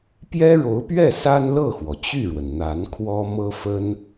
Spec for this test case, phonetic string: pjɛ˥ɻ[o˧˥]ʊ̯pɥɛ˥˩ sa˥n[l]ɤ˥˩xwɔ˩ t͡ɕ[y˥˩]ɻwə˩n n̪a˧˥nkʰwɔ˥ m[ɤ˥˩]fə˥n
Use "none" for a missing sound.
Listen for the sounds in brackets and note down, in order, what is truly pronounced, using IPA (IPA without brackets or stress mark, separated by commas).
o˧˥, l, y˥˩, ɤ˥